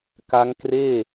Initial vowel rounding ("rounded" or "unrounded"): unrounded